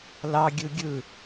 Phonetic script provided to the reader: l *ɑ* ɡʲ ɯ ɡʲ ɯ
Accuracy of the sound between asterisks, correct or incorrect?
correct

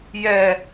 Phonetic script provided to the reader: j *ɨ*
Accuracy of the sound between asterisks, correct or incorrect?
incorrect: ɛ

